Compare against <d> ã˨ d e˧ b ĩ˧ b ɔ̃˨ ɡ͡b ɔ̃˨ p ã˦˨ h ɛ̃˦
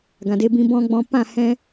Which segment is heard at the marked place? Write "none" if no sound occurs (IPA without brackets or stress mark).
ɡ